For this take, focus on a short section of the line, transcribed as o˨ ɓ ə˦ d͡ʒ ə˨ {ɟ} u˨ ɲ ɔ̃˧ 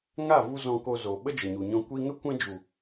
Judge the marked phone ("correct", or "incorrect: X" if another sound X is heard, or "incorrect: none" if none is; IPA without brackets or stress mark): incorrect: ɲ